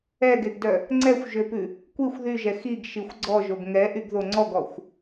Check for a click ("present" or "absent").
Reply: present